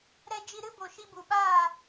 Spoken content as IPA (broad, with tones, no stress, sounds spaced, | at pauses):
ɾ ɛ˧ d͡ʒ i˧ ɾ ɨ˦ b o˨ ʃ i˧ b u˨ ɓ aː˦˨